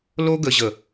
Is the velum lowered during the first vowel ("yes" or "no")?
no